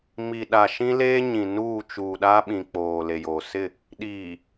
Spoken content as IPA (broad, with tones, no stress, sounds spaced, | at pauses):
m i˨ ɗ a˨ ʃ ĩ˦ l eː˦ ɲ ĩ˨ n uː˦˨ t͡ʃ uː˨ ɗ a˦ ɓ ĩ˨ k͡p oː˨ l e˨ j oː˨ s ɪ˦˨ | ɗ iː˨